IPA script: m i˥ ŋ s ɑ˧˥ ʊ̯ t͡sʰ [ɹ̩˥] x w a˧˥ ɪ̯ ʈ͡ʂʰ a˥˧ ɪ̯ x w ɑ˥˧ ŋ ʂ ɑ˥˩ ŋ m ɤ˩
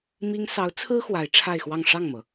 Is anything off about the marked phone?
no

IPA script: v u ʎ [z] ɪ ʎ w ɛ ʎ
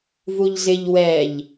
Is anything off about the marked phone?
no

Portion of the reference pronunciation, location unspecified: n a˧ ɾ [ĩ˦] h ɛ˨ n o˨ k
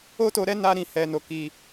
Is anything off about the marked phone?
yes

